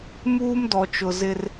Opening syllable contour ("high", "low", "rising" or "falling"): high